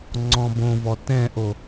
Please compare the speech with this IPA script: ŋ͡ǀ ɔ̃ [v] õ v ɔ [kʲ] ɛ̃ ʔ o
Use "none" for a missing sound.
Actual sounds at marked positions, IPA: b, t

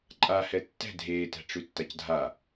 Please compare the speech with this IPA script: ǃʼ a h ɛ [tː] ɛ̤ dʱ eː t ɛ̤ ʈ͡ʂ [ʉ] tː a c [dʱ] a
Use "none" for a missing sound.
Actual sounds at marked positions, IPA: tː, ʉ, dʱ

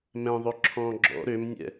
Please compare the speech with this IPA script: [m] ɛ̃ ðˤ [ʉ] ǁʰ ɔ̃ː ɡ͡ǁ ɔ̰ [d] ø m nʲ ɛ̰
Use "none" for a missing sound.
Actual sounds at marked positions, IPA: m, ø, ɾ

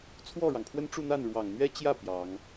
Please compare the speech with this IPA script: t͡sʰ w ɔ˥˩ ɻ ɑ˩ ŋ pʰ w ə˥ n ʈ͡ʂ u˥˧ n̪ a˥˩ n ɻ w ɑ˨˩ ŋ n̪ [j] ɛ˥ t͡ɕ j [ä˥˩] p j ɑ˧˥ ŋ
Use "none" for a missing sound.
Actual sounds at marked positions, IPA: ɥ, ä˥˩

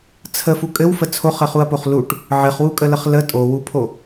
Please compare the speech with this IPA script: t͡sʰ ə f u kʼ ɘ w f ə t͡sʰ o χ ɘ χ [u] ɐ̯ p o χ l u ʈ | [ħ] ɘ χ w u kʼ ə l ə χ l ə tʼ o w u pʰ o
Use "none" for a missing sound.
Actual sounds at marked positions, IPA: u, ʕ

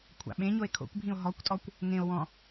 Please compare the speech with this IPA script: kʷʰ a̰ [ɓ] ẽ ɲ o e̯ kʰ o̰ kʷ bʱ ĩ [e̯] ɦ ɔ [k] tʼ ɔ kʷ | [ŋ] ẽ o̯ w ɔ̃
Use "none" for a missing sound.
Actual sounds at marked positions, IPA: ɓ, o̯, kʷ, ŋ

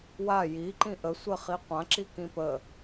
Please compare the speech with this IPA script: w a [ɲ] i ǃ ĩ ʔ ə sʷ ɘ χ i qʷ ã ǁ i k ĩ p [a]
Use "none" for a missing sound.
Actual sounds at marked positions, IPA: j, ə

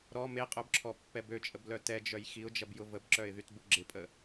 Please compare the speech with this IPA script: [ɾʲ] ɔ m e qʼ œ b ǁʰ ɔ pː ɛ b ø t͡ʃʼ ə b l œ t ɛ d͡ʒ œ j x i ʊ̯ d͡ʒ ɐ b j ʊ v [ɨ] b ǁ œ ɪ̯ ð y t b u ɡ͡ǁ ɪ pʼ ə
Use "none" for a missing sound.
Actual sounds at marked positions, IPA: ɾ, ə

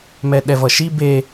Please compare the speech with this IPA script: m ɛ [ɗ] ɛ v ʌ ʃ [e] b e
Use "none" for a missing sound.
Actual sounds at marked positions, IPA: ɗ, i

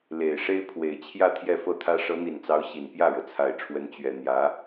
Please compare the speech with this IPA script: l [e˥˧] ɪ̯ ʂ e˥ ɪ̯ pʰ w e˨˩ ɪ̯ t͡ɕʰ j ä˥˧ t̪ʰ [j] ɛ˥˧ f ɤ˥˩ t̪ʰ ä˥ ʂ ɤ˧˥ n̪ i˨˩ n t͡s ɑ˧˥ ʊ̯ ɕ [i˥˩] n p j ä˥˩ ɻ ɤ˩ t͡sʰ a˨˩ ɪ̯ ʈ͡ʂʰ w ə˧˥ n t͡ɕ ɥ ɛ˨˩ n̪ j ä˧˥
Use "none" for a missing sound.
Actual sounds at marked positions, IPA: e˨˩, j, i˨˩

